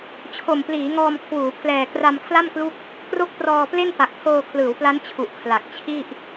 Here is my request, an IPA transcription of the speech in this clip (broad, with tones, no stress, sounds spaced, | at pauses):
t͡ɕʰ o˨˩ m p l iː˩˦ ŋ ɔː˧ m kʰ w uː˩˦ pʰ l ɛː˨˩ k r a˧ m kʰ l a˥˩ m k l u˦˥ k̚ | k r o˥˩ k̚ p r ɔː˧ p l e˥˩ n p a˨˩ k̚ pʰ oː˧ kʰ l ɯː˩˦ w p l a˦˥ n t͡ɕʰ u˨˩ ʔ kʰ l a˨˩ k̚ t͡ɕʰ i˥˩ ʔ